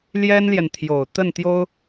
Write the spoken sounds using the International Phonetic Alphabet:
l j ɛ˥ n l j ɛ˨ n t̪ʰ j o˨˩ ʊ̯ t̪ ə˥˩ n t̪ j o˥ ʊ̯

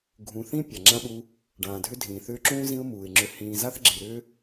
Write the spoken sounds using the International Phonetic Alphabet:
ɡʱ ũ˨ θ ĩ˥ pʲ a˩ ŋ͡ǁ ã˥ ɓ u˦ | ɖ ãː˩ dʱ ʏ˦ dʱ ĩː˩ θ ʏː˦ ǁ ũː˥ z ĩ˦ ʊ̯ m uː˩ ɪ̯ ŋ͡ǁ ʏ˨ h ĩː˨ z a˥ θ ɡ͡ǁ i˩ ɾ ʏː˥

